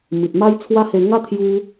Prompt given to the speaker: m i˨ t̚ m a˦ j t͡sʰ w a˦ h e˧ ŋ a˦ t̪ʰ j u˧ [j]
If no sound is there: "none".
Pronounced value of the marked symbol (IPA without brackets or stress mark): none